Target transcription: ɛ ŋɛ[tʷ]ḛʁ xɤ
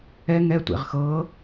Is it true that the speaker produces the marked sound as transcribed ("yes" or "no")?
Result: yes